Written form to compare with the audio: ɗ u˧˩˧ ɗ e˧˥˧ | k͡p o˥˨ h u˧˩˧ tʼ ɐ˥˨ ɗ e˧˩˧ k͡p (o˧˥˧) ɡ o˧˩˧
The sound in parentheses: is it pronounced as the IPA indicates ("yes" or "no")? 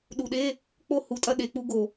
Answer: no